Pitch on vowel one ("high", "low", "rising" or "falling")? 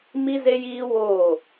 high